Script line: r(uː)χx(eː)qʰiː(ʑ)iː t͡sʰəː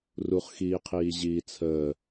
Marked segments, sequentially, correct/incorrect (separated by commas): incorrect, incorrect, correct